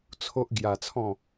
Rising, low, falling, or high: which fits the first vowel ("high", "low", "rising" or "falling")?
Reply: high